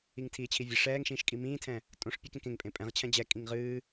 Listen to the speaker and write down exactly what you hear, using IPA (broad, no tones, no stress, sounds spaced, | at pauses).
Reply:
i ŋ tʰ iː t͡ɕʰ i vʲ ə ʂ ɛː ŋ ʃ ĩː ʃ kʼ i m ĩː tʰ ɛ̃ | tʼ õ ʂ pʲ ɨ k ẽ k ẽ ŋ pʼ ẽ pʼ ɛ̃ ʁ t͡ɕʰ ɛ̃ d͡ʑ ɛ kʼ ĩ ŋ ʁ ɨː